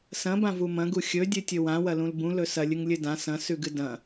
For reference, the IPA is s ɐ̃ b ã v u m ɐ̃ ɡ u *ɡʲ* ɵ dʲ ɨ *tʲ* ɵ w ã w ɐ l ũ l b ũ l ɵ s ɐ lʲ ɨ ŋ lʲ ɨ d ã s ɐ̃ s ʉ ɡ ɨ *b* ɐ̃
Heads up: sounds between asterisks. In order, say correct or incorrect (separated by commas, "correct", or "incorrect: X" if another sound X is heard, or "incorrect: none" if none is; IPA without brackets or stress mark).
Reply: incorrect: xʲ, correct, incorrect: d